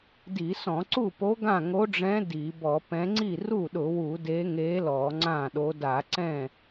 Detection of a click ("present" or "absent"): present